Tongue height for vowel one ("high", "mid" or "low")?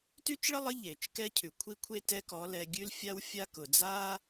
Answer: high